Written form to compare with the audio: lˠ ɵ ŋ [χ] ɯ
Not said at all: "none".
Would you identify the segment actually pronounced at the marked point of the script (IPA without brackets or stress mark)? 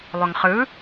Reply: χ